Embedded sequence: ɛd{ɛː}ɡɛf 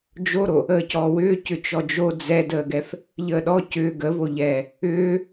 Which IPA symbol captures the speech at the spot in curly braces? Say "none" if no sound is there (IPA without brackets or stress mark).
əː